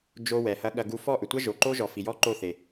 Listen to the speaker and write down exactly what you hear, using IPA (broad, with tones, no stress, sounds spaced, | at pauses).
d͡ʒ o˧ w ɛ˨ h ɐ˧ ɠ ɐ˧ ɡ u˧ f ɔ˦˨ ʔ ʏ˨ tʷ ɐ˦ ʒ o˨ ǃ o˦ ʒ ɔ˨ f i˨ j ɔ˦ ǃ o˦˨ θ e˨